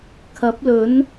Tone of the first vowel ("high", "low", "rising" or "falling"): rising